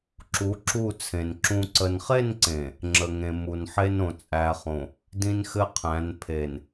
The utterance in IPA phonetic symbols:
ǁ u˨˦ ǁ u˦˨ t͡sʰ ẽ˨ n ǁ ũ˨ ǀ ə˨ n χ e˦˨ n ǀ ẽ˨ | ŋ͡ǁ ə˨ ŋ ẽ˨ m u˨ n ħ e˦ n õ˨ t͡sʼ æ˨ χ õ˨ | d ĩ˦ n x ɘ˦ qʰ æ̃˨˦ n pʰ e˨ n

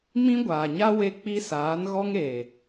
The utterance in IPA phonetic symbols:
m ĩ˦ ɡʷ aː˨ ɲ a˦ w e˦ k͡p i˦ s aː˨˦ n ɣ ɔ˦ ŋ eː˨

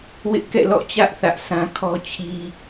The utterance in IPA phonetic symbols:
w ɪ˦ ʔ k ɛ̰˦˨ l ɔ̰˦˨ t͡ɕ ä˦ ʔ θ ä˦ ʔ sʰ ã˦ kʰ ɔ˦ t͡ɕʰ i˦

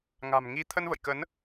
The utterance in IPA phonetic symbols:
ŋ a̤˨˩ m ŋ i˨˦ t̪ʰ ə˧ n v ə̰˧˨ j k ə˨˦ n

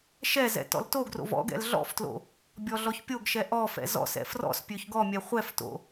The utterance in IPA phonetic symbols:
ʃ ɛ z ɛ̰ t ɔ̰ l t o ɡ r o̰ v ɔ̰ ɡ ɛ̰ l ɮ ɔ̰ f t l o̰ | bʲ ɔ ɮ ɔ ç pʲ o ɡ ʃ ɛ ʔ ɔ f ɛ̰ z ɔ̰ s ɛ̰ f r ɔ̰ s pʲ ø ç ɡ ɔ mʲ ɛ χʷ ɛ f t o̰

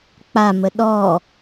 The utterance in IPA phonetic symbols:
k͡p a m ə ɗ ɔ

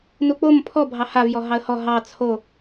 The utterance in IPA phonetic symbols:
n u k͡p o m pʰ ɔ bʱ ɑ h a v j ɔ ɦ ɑ ə̯ h ɔ ɦ ɑ t͡sʰ o

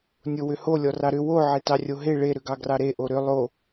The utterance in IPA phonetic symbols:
nʲ o w ʏ h o lʲ ɔ r ɑ ɾ ʏ w o ʕ e t ɑ rʲ o ɦ e ɭ e ɾ ʏ ɡ ɑ ɡ r ɑ ɾ e ʔ o ɾ ʏ lˠ o

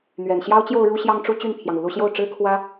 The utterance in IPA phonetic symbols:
n̪ ɥ ɛ˨˩ n ɕ j ɑ˥ ʊ̯ t͡ɕ j o˥˧ ʊ̯ ɻ u˥˧ ɕ j ɑ˥˧ ŋ ʈ͡ʂ u˥˧ t͡ɕ y˥˩ n pʰ j ɑ˩ ŋ u˩ l u˥˧ ɕ j o˥˩ ʊ̯ ʈ͡ʂ ɻ̩˥ kʰ w ä˥

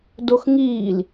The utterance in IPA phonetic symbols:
d o x ŋ iː l

